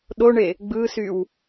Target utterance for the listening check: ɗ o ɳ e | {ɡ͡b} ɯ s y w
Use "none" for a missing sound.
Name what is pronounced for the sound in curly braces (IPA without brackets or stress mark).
ɡ͡b